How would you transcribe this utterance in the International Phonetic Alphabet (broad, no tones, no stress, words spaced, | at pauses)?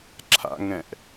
ǁʰa̰ŋɛ̃ʔ